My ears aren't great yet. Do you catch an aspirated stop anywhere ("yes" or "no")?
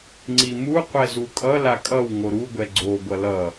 no